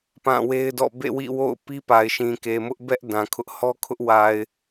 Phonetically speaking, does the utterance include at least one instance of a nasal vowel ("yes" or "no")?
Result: yes